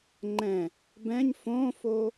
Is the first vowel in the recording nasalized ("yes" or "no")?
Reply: yes